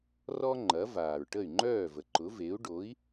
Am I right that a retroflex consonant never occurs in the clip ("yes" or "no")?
no